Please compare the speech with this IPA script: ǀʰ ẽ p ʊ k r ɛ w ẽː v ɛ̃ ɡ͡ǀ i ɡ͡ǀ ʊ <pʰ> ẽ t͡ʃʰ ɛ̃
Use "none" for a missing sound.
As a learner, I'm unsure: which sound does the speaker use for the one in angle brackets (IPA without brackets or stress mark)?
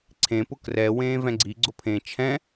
pʰ